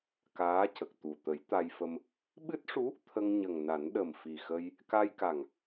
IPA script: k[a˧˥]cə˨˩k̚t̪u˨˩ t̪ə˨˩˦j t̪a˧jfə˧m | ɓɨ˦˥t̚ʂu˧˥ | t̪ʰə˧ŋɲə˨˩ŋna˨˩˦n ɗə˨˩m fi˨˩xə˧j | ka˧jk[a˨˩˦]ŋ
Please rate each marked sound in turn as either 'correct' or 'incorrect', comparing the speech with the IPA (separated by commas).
incorrect, incorrect